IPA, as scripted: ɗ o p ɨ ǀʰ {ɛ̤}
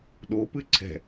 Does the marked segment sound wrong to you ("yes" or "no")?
no